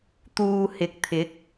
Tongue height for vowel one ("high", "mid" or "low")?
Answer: high